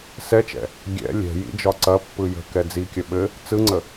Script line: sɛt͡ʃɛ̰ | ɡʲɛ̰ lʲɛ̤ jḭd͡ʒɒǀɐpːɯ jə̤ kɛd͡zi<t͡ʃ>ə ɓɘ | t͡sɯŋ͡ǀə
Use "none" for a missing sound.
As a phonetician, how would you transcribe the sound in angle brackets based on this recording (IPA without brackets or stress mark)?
kʲ